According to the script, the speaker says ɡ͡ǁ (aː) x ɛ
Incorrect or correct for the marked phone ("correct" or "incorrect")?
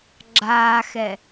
correct